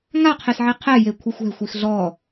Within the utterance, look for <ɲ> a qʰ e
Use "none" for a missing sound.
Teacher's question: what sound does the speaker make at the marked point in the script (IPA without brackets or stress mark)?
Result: ŋ